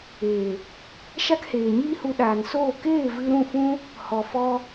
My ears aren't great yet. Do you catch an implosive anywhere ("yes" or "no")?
yes